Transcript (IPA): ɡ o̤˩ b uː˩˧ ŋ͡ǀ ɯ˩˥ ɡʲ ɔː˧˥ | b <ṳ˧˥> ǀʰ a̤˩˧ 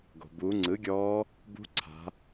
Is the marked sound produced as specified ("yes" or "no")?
yes